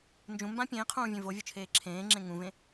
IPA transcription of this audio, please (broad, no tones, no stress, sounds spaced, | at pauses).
n d͡ʒ ũ m b ã pʲ ẽː qʰ ũː vʲ ẽ v o vʲ o t͡ʃʰ eː ǁʰ ẽː ŋ͡ǁ ẽ ŋ ũ v ẽ